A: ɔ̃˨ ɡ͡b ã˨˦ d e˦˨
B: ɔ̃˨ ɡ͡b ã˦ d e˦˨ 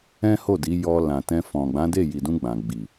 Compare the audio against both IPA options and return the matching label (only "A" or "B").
A